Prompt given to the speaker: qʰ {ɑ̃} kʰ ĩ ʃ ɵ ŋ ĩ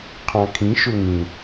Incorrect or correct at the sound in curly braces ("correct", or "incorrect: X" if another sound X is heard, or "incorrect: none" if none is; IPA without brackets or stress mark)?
correct